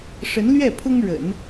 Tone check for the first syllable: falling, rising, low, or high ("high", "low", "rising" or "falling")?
rising